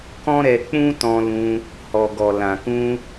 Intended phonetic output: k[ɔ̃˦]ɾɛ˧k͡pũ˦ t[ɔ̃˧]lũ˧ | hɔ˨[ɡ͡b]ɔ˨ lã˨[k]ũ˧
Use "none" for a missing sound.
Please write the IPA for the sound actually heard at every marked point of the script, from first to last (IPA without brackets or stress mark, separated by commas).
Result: ɔ̃˦, ɔ̃˧, ɡ, k